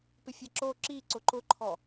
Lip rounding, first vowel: unrounded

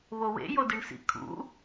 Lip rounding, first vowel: rounded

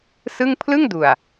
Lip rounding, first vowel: unrounded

